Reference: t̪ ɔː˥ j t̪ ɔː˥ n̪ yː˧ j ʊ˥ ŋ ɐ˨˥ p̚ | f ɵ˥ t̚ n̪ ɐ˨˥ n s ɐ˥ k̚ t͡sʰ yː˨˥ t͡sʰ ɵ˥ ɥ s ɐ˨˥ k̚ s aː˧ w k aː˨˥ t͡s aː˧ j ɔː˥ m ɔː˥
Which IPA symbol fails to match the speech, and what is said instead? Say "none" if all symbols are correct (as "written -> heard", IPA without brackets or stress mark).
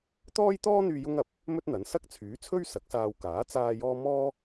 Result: f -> m